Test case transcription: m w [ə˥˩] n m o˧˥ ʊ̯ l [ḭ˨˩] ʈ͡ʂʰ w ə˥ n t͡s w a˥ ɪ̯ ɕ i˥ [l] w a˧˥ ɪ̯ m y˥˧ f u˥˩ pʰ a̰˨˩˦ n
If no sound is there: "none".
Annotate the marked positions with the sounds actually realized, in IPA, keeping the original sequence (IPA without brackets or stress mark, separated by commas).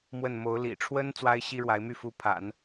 ə˥˩, ḭ˨˩, ɻ